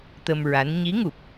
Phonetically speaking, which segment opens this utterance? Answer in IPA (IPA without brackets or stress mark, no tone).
t̪